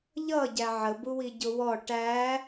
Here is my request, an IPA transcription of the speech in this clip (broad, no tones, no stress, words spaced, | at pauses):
ʎʌ ɟæʕə buwiɟʊwɔ ʈæ